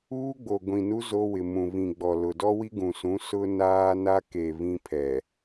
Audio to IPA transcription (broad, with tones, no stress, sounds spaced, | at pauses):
uː˦ ɡ͡b o˨ ɡʷ ĩ˨ n u˦ z o˦ w ɪ˨ m ũ˨ β ĩ˨ ɡ͡b ɔ˨ l ʊ˨ d ɔ˦ w i˦ ɡ ũ˨ s ũ˨˦ s ʊ˦ n aː˦ n a˦ k e˨ β ĩ˦ pʰ ɛ˨